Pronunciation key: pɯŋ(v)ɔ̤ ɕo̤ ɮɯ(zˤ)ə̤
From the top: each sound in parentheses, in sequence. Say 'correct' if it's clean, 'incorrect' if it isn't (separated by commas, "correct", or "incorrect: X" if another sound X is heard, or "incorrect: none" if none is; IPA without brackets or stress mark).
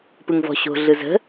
correct, incorrect: z